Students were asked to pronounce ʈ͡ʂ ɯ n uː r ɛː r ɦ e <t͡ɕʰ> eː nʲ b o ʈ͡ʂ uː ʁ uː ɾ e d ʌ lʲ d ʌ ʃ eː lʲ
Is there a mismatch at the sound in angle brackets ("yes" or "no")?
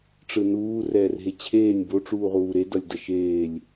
no